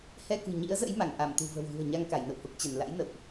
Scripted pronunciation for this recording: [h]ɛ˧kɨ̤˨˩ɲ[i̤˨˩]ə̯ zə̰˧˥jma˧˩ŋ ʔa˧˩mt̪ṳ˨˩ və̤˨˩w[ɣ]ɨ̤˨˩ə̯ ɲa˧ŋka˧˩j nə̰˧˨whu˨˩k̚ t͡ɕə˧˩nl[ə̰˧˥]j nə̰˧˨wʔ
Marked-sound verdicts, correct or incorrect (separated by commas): correct, incorrect, correct, incorrect